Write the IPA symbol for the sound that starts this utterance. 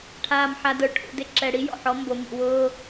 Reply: ʈʰ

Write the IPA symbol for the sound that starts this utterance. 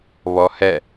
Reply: β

